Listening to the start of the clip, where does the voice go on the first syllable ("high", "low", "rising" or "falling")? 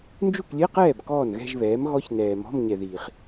falling